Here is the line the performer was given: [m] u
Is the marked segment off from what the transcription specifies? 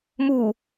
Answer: no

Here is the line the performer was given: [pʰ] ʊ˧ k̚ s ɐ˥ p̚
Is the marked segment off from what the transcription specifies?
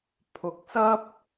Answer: no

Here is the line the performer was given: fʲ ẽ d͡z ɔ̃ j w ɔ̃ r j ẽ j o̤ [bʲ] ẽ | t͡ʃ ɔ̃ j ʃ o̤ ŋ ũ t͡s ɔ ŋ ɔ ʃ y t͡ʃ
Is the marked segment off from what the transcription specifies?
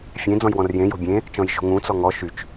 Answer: no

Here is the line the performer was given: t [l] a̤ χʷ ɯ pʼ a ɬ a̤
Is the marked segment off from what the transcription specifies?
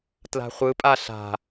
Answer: no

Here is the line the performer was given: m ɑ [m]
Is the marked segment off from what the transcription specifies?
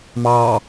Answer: yes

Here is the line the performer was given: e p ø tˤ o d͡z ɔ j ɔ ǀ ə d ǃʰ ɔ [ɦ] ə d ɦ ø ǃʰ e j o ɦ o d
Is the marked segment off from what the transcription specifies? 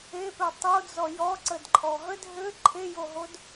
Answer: no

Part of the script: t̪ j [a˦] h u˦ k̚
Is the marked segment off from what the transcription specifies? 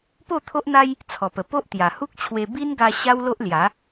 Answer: yes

